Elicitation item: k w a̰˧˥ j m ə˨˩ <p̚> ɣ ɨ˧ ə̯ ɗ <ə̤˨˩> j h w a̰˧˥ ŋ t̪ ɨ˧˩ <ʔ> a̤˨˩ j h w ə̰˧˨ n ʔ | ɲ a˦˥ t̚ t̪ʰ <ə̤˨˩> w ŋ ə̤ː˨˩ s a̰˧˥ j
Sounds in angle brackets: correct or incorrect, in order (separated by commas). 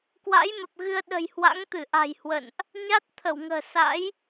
correct, correct, correct, incorrect